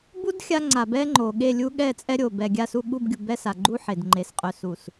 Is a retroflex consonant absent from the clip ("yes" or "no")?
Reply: yes